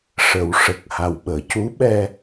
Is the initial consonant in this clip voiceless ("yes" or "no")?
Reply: yes